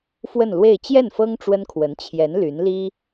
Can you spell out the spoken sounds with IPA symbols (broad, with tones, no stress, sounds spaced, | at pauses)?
f w ə˥˧ n l w e˥˧ ɪ̯ t͡ɕ j ɛ˥˩ n f ɤ˥ ŋ ʈ͡ʂ w ə˥ n kʰ w ə˧˥ n t͡ɕʰ j ɛ˧˥ n l y˧˥ n l i˥